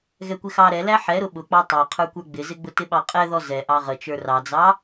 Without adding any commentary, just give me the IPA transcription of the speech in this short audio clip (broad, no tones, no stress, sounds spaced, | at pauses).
ɣ ɛ kʷ ɪ x ɑ ɾ ɛ l æ ħ ɛ ɾ ʊ ɓ ʊ k͡p ɑ tˤ ɑ qʰ ə˞ kʷ ə˞ ɡ͡b ɪ z ɪ ɡ͡b ʊ t ɪ ɓ ɑ qʼ ɛ ð ɔ z ɛ ʔ ɑ ʁ ə t͡ʃ ə˞ r ɑ d͡z ɑ